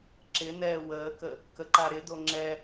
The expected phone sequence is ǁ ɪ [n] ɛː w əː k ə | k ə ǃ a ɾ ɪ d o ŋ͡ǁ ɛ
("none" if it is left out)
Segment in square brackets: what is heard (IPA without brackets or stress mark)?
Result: n